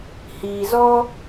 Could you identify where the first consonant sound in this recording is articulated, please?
glottal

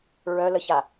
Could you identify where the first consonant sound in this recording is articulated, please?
alveolar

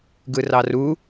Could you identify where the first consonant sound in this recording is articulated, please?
velar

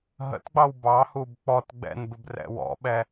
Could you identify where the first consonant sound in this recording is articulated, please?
glottal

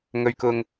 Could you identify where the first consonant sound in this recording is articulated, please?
velar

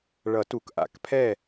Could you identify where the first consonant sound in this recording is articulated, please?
retroflex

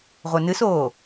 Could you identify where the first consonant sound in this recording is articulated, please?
uvular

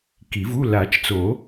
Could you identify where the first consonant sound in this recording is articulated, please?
velar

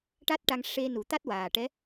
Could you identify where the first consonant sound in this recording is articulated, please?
retroflex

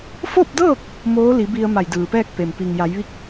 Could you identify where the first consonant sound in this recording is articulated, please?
labial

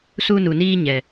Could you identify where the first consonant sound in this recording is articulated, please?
alveolar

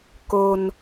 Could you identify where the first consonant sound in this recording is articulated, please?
velar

